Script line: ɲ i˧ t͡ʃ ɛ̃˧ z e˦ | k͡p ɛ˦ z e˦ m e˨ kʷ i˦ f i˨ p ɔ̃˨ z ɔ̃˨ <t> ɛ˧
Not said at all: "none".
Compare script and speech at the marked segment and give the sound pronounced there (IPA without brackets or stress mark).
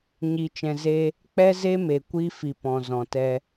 t